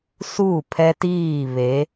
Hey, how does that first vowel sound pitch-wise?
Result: falling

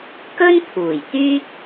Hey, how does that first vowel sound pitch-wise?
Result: high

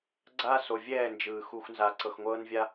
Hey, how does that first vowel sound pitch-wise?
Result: high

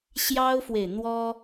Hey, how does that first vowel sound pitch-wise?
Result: high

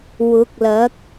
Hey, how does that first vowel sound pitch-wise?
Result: rising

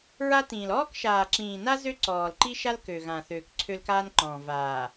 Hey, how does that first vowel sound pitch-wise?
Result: high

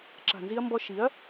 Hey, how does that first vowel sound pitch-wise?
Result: low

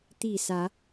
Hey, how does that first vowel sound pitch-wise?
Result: falling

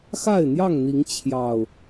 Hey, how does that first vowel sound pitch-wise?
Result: falling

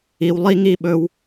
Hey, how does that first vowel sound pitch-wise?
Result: low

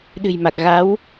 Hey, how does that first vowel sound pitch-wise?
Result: low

